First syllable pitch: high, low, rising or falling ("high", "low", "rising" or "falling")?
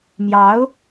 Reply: rising